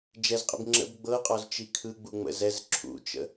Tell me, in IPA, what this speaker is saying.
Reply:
d͡ʒ ɛ z qʼ ḭ b ŋ͡ǁ ə̰ b ɡ͡b ɤ qʼ ɔ z t͡ʃ i kʰ ɯ ɡ͡b u ŋ͡m ə̰ z ɛ z ǁʰ ṵ t͡ʃ ə̰

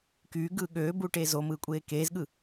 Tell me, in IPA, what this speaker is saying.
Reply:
k yː ɡ ɯː ɠ øː b uː ʈ eː z o m ɯː kʷʼ eː k eː z ɠ ɯ

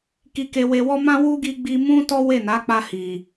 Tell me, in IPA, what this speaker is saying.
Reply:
k i˧ k e˧ w e˧ w ɔ˦ m ã˦ w u˦ ɡ i˧ ɡ͡b i˧ m ũ˦ t ɔ˦ w e˦˨ n a˨˦ k͡p a˧ h i˨

